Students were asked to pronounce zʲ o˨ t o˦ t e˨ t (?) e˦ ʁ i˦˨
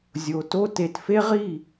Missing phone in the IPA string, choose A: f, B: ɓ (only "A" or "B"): A